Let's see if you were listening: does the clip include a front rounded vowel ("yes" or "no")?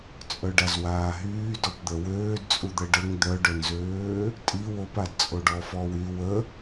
yes